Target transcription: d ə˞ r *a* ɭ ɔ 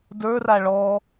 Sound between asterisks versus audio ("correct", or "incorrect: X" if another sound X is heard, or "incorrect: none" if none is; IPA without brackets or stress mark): correct